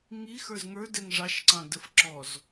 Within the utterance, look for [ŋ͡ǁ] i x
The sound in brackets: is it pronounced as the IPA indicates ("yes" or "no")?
no